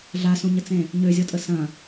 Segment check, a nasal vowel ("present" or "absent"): present